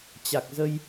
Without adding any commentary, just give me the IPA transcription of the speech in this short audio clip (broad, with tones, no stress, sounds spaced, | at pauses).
t͡ɕ a˨˩ k̚ z ə˧ j